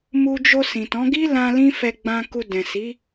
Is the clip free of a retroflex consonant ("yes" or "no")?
yes